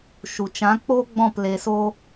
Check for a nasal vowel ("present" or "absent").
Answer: present